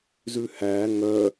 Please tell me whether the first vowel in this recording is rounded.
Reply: yes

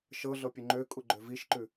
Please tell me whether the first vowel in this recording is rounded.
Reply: no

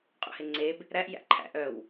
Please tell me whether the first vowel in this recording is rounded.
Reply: yes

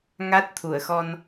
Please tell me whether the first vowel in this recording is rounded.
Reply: no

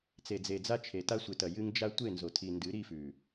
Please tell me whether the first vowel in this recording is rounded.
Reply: no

